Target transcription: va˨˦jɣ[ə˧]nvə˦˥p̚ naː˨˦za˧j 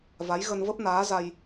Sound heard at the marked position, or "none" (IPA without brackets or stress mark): ə˧